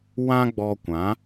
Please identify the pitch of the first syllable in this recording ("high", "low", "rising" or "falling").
high